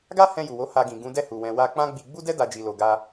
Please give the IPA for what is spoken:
ɡ a˦ h ɛ̃˧ j u˨ w o˨˦ h a˧ ɡ ĩ˨ ɡ ũ˨˦ d ɛ˦˨ h u˨ w ɛ̃˨ w a˧ k͡p ã˦ ɡ͡b i˧ ɡ͡b u˦ d ɛ˦ d a˧ d͡ʒ i˨ l o˨ ɡ a˧

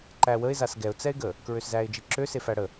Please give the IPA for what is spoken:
ǃ æ w ə ɪ̯ z a s ɡ ɛ ʊ̯ t͡s ɛ ɪ̯ ɡ ə | k ɹ ø s z æ ɪ̯ d͡ʒ i ǁ ø s e f æ ɽ ə

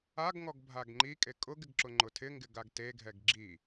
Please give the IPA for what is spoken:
a ɡ ŋ ɔ ɡ bʱ a ɡ ŋ͡ǃ i kʼ e kʼ ʊ ɡ ɪ ɡ ǁ ʊ ŋ͡ǃ ʊ tʰ ɪ ŋ ɡ ɪ ɡ a ɡ t e ɡʱ ɛ ɡ ɡ͡ǁ i

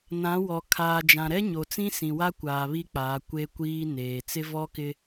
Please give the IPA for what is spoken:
n ã˨˦ w ɔ˨ kʰ aː˨ d͡ʒ ã˨ ɾ ɛ˦ ɲ o˨ t͡s ĩ˦ s ĩ˨ w a˦ kʷ aː˨ β i˦ k͡p aː˨˦ kʷ e˦ kʷ iː˦ n eː˨ t͡s ɪ˦ v ɔ˦ k ɪ˦

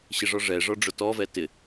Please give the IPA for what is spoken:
ɕ ɪ ʐ ɔ ʐ ɛ ʐ ɔ ɖ͡ʐ ʊ t ɔ v ɛ t ɪ

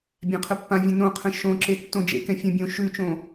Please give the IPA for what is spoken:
bʲ ã qʰ ə pː ã vʲ ə̃ n õ qʰ ə̃ ʃ õ ǁ e tː õ d͡ʒ ḛ k ɛ̃ fʲ ə̃ bʲ õ ʃ ʉ t͡ʃ õ

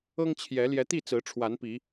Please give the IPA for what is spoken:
ɤ˦ ŋ t͡ɕʰ j ɛ˨˦ l j ɛ˨˦ t̪ i˥˨ t͡s ɹ̩˨˦ ʈ͡ʂʰ w a˨˦ n p i˨˦

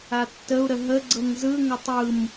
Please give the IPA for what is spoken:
a tː ə u̯ ɾ ə ɦ ə ɡ͡ǀ ɤ ŋ z ɯ ŋ ɵ tˤ ɯ m

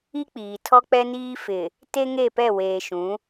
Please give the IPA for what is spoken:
i˦ k͡p iː˨ tʰ ɔ˦ k͡p ɛ˦ n iː˦ f ɪ˨ | t e˦ ŋ e˦˨ p ɛ˦˨ w eː˨ ʃ ũ˨˦

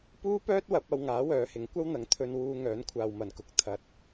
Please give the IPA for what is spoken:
p uː˥ p œː˥ t̚ w ɐ˨˥ p̚ ɐ˧ w ŋ aː˨˥ w œː˨˧ h ɪ˨˥ ŋ kʷ ɐ˥ w n̪ ɐ˨˥ ŋ t̪ʰ ɵ˧ n w uː˧ ŋ œː˨˥ n kʷʰ aː˨ w m ɐ˨˩ n k ʊ˨˥ k̚ t̪ʰ ɐ˨ t̚

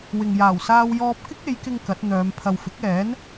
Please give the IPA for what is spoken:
w ɪ˨ ŋ j aː˨˩ w s aː˧ w j ɔː˧ p̚ k ɪ˥ k̚ e˨˧ j k ɪ˧ ŋ k ɐ˨˥ t̚ n̪ œː˨˧ m pʰ ɐ˨ w f ɪ˨˥ k̚ ɛː˨˥ n

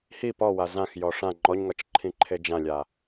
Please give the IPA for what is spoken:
h i p ɔ w a z ã x j ɔ ʂ ã ŋ͡ǃ ɔ ɲ ŋ ɒ t͡ʃ ǃʰ ĩ ǃʰ e d͡ʒ ã lʲ a

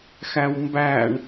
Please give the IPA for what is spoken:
x æ w m b æ ɳ

